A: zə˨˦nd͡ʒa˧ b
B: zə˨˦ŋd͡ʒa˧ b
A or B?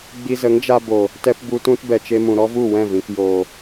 B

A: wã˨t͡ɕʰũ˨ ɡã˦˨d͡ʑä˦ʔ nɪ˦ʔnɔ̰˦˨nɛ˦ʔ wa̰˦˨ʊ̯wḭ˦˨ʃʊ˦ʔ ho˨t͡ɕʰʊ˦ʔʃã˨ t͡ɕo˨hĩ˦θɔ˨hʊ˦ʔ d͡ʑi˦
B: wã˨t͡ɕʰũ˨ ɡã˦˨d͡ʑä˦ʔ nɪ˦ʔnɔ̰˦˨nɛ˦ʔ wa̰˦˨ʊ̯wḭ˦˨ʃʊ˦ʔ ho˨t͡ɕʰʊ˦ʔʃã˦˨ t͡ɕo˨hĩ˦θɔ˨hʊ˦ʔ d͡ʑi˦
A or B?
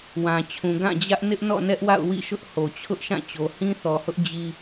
B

